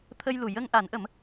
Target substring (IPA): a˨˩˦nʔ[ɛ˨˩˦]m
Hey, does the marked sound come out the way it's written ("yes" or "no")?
no